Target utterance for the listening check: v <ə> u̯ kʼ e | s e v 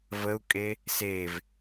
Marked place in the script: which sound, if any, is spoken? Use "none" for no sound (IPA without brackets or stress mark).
ə